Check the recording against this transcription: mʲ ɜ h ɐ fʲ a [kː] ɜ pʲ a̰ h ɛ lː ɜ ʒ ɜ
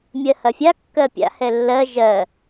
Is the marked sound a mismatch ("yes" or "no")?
no